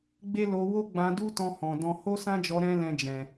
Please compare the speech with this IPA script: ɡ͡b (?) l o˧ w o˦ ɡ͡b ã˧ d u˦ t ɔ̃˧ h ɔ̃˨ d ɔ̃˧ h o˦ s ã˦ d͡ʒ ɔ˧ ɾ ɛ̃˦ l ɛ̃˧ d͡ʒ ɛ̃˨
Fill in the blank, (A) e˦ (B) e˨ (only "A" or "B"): A